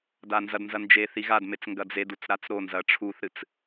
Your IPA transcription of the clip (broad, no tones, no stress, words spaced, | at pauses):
danzɐdnzɐ nd͡ʒe θiɣadmet͡s ŋɡɐd͡zedut͡s ɾat͡sɾonzɐ ʈ͡ʂʰuθɾɨt͡s